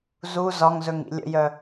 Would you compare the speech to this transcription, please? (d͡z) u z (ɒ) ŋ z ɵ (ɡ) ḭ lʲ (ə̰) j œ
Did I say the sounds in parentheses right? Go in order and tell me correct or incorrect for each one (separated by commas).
incorrect, correct, incorrect, correct